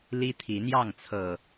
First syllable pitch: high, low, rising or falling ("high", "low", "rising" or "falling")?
high